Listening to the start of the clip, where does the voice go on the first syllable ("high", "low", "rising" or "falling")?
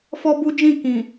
high